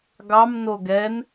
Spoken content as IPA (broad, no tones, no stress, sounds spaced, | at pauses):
ɡ ɑ m n o ɡ ɛ n